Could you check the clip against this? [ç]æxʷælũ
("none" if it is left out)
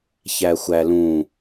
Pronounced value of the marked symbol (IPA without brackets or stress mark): ç